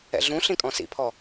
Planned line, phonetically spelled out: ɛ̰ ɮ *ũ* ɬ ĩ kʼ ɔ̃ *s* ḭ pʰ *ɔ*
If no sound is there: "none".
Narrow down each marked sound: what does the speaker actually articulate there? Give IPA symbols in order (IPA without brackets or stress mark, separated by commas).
ũ, s, ɔ